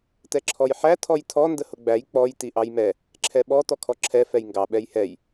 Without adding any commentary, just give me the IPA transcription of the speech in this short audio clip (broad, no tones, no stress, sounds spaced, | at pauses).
t ɛ ǁʰ ɔ j ħ æ tʰ ɔ j tʰ ɔ n d ə h ʊ ɡ͡b æ j k͡p ɔ j t i ʔ ɑ j m ɛ | ǁʰ ɛ ɓ ɔ t ɔ kʰ ɔ ǁʰ ɛ f ɛ j ŋ ɡ ɑ ɓ ɛ j h ɛ j